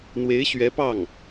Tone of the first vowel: rising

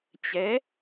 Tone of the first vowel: rising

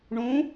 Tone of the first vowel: rising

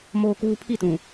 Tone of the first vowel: low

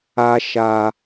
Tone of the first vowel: high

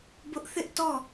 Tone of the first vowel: high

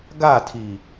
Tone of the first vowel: falling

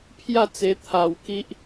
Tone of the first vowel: falling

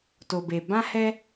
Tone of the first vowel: low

